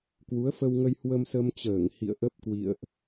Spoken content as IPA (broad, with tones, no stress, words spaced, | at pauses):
kwu˨˦ə̯fə˧wŋə˧j hwə˧msə˧mt͡ɕəː˧˩ŋ hḭ˧˨ə̯ʔə˦˥p̚kwḭ˧˨ə̯ʔ